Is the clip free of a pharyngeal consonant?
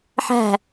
no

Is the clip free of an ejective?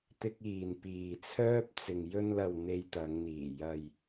yes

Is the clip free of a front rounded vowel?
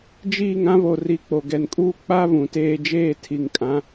yes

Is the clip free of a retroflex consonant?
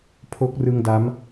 yes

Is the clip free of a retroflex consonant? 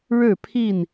no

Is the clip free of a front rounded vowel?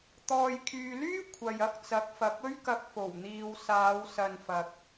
no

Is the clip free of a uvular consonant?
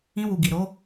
yes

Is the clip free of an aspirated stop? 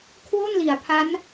no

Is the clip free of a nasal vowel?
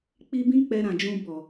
no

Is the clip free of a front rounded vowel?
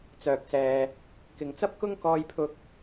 no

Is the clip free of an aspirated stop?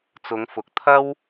no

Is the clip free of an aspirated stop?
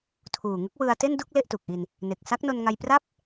no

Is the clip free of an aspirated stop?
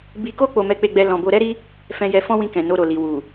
yes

